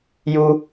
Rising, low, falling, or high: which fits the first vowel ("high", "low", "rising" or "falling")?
high